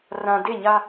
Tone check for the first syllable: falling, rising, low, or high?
low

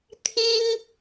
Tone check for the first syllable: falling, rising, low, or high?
high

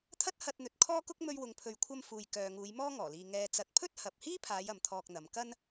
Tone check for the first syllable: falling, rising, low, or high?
high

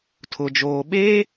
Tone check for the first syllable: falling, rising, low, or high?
low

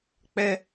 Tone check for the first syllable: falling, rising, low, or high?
high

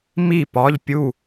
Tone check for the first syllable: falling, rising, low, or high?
falling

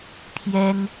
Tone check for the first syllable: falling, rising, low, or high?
high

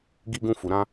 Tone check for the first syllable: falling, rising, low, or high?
high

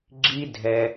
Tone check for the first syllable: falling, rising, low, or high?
high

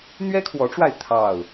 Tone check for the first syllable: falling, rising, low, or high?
high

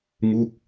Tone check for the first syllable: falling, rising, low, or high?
falling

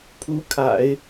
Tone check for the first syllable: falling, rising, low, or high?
rising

